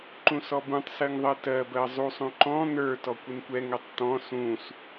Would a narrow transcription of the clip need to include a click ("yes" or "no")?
yes